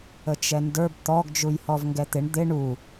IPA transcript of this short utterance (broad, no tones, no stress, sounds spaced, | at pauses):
ə t͡ʃ ɛ n d ə˞ b t̪ ɔ ɡ d͡ʒ u j h ɔ v ŋ ɡ ɛ t̪ ɪ ɳ d̪ ɪ ɳ u